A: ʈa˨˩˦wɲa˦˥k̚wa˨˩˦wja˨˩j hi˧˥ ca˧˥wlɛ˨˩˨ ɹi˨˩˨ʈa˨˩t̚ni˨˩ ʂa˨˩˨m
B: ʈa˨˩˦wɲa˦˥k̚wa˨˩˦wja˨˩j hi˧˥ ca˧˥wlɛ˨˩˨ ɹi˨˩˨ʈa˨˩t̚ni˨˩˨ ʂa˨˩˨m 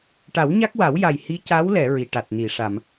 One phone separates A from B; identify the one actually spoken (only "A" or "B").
B